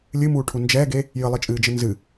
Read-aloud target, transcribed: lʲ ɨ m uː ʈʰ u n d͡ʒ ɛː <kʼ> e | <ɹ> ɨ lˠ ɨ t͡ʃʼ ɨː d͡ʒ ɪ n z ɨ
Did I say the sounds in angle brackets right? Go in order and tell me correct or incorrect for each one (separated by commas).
incorrect, incorrect